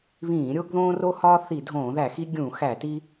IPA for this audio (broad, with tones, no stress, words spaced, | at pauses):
βĩː˧˩˧ɾʲo˦ɡ ðõː˦ro˦hɒː˦ θi˧˩˧dʱõː˧˩˧ðæ˧˩˧xi˦ ɡʲũ˧˩˧xæ˧˩˧ti˦